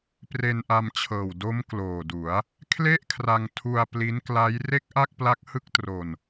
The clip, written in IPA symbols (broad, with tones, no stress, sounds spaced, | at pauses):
p r e˧ n ʔ a˧ m t͡ɕʰ ɤː˨˩ w d o˦˥ m k l oː˨˩ d u˩˦ a̯ | kʰ l e˥˩ ʔ kʰ r a˧ ŋ tʰ u˧ a̯ p l i˦˥ n k l a˦˥ j r e˥˩ k̚ ʔ a˥˩ k̚ p l a˦˥ k̚ h ɯ˥˩ k̚ t r o˧ n